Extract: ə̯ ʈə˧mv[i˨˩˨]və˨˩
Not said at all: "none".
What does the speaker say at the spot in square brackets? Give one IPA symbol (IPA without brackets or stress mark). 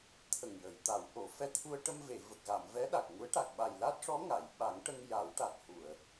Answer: e˨˩˨